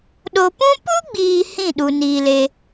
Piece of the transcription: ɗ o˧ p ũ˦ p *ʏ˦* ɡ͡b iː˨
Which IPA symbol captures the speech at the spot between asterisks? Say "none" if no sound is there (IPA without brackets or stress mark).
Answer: u˦